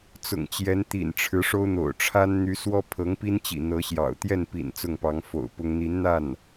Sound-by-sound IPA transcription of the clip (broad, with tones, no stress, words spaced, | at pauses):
t͡sʊ̰˨˩ŋt͡ɕjɛ˧˥nt̪ḭ˨˩n ʈ͡ʂʰɻ̩˧˥ʂo˥ʊ̯n̪o̰˨˩ʊ̯ ʈ͡ʂʰa˥nn̪y˧˥ swɔ˥pʰɤ˧˥ŋpi˥nt͡ɕḭ˨˩ n̪ɤ˧˥ɕjɑ̰˨˩ʊ̯ t̪jɛ˥˩npḭ˨˩n t͡sʊ˥˩ŋpɑ˧˥ŋfo̰˨˩ʊ̯pʊ˥ŋ n̪i˧˥nn̪a˥˩n